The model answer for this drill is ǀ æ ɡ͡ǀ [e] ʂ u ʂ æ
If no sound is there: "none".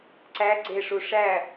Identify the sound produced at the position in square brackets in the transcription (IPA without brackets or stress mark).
e